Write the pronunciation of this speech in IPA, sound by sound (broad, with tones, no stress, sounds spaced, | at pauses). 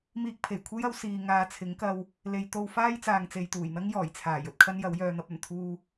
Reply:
m iː˧ k̚ pʰ e˨˩ j kʷʰ e˥ j ɐ˨˥ w s iː˨ ŋ aː˧ t͡sʰ ɪ˨˥ ŋ k ɐ˧ w | l e˨ j t̪ o˧ w f aː˥ j t͡s aː˨ ŋ t͡s e˨ j t̪ uː˨˩ j n̪ ɐ˥ ŋ j ɔː˨˩ j t͡sʰ aː˨˩ j ɵ˨ t̚ kʰ ɐ˥ n j ɐ˨˥ w j œː˨ n̪ ɐ˧ p̚ ɵ˨˩ n t̪ʰ uː˧